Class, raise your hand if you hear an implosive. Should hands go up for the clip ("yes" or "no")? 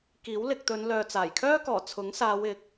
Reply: no